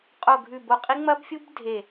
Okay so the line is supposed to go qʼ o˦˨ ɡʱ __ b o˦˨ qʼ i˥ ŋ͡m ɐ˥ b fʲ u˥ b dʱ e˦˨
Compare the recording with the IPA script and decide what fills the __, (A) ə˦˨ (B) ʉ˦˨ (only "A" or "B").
B